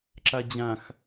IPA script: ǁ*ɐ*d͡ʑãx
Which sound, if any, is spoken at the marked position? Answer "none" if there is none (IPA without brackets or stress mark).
a